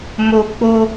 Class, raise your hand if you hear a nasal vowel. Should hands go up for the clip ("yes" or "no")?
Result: no